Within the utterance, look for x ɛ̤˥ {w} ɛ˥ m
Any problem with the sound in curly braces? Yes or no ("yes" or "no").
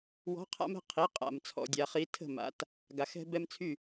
yes